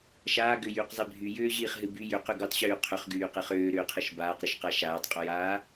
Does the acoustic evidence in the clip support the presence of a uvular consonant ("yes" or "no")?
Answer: yes